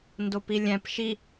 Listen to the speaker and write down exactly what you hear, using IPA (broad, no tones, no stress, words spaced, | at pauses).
ndopilʲæ̃p ʃi